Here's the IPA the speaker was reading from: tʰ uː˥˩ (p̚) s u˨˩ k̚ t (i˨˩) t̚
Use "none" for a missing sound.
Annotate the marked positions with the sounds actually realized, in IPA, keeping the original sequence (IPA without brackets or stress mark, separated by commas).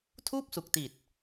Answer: p̚, i˨˩